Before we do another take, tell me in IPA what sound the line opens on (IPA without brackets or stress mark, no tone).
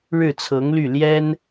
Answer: ɻ